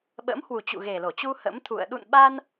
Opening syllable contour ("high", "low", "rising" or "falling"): rising